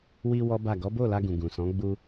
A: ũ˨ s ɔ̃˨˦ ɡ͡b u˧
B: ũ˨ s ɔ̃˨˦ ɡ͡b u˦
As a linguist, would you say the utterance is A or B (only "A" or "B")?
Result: A